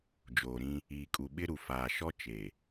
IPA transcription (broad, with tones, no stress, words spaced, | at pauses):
d͡ʒoː˨ɾĩ˦ | iː˨kʼu˨ ɓɪ˦ɾu˨ faː˨ʃɔ˦ t͡ʃe˨